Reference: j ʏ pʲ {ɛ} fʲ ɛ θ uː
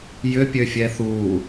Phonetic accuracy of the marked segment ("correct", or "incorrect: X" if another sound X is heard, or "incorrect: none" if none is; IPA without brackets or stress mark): incorrect: ø